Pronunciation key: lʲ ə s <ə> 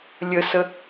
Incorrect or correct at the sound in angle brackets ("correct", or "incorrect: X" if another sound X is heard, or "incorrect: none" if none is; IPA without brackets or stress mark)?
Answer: correct